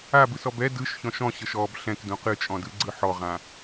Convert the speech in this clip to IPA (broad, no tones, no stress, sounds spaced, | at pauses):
a b ɯ s ɔ b ɛ d ɯ ʃ ç ɔ̃ ʃ ɔ̃ ɕ ɤ ʃ ɔ b ɬ ɛ̃ k d ũ q ɨ t͡ʃʼ ɔ̃ d ɯ ɡ͡ǀ ɯ ħ ɔ ʁ ã